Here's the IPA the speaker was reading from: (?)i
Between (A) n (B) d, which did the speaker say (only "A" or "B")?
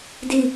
B